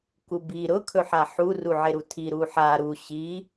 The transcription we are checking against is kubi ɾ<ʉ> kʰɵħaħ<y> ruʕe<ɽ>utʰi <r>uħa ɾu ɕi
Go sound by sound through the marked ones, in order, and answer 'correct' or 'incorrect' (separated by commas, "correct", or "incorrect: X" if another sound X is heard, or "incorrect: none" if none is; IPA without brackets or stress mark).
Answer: incorrect: ʊ, incorrect: u, incorrect: ɾ, incorrect: ɾ